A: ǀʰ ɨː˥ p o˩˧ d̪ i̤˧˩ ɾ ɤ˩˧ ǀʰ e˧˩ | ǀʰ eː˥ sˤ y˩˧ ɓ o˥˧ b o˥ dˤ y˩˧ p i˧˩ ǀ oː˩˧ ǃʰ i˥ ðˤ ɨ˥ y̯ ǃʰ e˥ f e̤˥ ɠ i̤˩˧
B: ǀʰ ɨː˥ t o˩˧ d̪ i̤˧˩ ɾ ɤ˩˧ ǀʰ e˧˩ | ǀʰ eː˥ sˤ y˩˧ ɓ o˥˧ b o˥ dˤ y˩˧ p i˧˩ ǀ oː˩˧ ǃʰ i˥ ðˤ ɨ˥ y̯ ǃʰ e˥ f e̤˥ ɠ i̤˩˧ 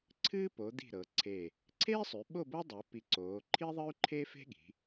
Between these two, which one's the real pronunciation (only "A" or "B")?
A